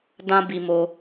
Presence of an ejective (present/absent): absent